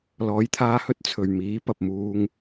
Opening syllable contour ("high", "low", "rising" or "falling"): rising